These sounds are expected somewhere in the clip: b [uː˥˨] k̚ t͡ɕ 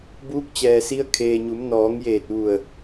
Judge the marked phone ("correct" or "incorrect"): incorrect